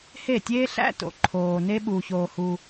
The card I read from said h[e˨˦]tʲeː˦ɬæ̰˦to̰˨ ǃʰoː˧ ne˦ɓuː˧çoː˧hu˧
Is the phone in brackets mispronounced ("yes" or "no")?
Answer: yes